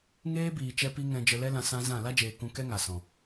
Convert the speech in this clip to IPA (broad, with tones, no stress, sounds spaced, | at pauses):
ŋ eː˦ b iː˨ t͡ʃ ɛ˧ p i˧ ŋ ɛ̃˧ d͡ʒ ə˧ l ɛ˦ l ã˧ s ã˦ z ã˦˨ l a˦ d͡ʒ eː˨ k ũ˧ k ɛ˦ ŋ a˨ s ɔ̃˨